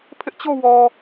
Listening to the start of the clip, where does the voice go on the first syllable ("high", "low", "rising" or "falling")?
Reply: high